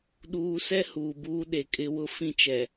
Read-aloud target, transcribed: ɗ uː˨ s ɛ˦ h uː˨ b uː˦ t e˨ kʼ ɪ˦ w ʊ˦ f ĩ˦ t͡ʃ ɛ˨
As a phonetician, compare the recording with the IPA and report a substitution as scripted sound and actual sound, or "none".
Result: t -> ɗ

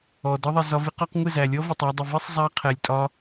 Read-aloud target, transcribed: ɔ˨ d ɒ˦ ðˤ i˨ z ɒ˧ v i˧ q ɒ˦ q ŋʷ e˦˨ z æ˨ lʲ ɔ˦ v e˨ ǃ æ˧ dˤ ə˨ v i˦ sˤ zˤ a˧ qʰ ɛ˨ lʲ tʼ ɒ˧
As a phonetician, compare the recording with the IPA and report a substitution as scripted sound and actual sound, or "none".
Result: ǃ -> tˤ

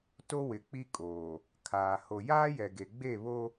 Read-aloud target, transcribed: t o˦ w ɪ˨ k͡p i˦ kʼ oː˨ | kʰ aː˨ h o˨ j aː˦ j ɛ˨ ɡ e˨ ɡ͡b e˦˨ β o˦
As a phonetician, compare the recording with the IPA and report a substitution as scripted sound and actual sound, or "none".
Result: none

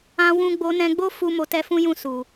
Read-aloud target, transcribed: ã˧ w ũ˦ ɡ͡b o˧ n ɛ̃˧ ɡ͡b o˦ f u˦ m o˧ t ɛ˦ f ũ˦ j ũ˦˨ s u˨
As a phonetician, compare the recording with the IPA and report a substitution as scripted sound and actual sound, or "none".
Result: none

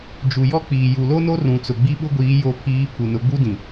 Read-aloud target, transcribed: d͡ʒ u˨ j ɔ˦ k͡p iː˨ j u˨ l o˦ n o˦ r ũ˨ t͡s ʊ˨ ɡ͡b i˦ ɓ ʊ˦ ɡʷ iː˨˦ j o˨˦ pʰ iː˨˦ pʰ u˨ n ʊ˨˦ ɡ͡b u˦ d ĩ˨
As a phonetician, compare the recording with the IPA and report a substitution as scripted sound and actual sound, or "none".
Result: none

